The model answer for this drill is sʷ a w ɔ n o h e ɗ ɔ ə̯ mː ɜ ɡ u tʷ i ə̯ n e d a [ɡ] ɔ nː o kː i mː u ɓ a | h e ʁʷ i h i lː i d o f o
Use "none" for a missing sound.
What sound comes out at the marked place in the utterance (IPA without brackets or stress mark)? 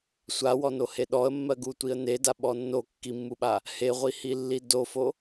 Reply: ɓ